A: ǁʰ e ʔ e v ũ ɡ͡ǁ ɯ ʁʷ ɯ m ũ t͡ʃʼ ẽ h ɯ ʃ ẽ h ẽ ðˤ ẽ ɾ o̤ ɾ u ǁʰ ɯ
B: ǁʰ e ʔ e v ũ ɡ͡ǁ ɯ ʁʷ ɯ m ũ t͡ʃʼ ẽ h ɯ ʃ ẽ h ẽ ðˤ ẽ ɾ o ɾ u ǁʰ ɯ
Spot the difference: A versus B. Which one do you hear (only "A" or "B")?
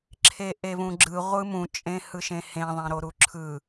B